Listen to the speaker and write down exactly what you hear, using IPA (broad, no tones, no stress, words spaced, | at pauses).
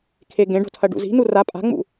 kʰeɡẽɖo̤tʰɐ ɖṵzi̤ nura pʼa̤ŋ͡mṵ